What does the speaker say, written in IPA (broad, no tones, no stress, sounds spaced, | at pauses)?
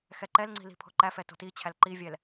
x ɛ ǃ ɛ l ŋ͡ǀ i̤ l i̤ pʰ o̤ ǃ æ f ɛ t o̤ t i t͡ɕʰ æ l ǃ i vʲ ɛ l